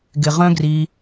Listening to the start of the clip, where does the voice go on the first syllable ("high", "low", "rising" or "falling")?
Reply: low